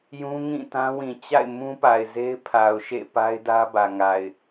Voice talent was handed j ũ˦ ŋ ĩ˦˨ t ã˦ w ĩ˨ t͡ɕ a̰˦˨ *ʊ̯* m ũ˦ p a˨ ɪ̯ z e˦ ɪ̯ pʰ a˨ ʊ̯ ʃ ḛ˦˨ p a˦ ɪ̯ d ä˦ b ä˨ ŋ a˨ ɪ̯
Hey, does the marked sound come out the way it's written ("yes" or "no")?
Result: no